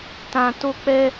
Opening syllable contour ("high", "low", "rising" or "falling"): high